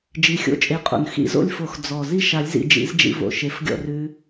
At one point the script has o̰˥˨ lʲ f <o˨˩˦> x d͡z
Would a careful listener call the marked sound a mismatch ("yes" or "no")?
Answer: no